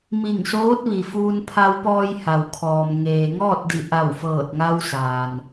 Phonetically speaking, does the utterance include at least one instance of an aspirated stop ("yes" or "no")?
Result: yes